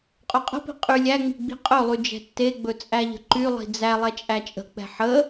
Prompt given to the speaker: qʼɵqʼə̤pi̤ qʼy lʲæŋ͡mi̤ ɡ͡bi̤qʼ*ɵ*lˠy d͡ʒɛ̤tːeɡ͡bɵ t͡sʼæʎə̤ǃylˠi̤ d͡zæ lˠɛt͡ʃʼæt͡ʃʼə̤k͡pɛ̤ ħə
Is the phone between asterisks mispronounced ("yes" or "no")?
no